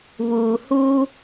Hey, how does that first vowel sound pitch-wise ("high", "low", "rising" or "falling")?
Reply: low